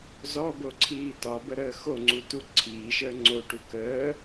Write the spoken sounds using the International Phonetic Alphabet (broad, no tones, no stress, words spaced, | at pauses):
zɔboǀʰiː tɒbəɾəː xoŋ͡ǀutu ǀʰiːʃəː ŋ͡ǀoʈu kəː